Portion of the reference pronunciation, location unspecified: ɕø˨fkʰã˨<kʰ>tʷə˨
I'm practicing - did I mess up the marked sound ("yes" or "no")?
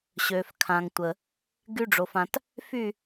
yes